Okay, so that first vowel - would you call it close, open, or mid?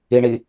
close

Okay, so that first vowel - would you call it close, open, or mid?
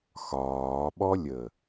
open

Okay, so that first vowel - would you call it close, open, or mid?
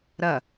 open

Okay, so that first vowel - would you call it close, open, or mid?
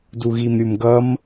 close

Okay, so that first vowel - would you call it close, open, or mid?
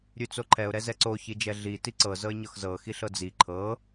close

